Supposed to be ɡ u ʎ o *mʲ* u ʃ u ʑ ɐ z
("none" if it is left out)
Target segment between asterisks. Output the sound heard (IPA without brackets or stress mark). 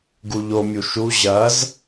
mʲ